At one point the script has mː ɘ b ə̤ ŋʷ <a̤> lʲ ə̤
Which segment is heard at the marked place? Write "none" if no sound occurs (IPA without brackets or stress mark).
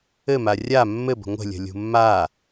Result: ə̤